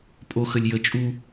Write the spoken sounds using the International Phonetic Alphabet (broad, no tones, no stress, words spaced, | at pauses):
pʼo xəlʲjə t͡ʃʼu